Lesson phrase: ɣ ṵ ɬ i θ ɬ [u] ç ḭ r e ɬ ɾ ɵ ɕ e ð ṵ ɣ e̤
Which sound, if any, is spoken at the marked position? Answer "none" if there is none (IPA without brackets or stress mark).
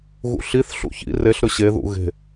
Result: ṵ